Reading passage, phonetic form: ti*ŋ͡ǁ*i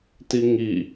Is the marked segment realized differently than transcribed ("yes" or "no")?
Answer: yes